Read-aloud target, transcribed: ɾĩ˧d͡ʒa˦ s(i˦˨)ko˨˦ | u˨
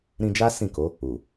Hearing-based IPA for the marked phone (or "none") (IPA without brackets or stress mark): ĩ˦˨